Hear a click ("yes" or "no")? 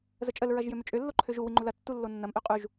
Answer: yes